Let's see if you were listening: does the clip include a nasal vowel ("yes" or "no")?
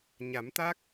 no